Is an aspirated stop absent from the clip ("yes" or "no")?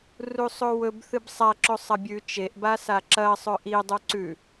yes